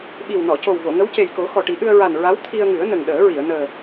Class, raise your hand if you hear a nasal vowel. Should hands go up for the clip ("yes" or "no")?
no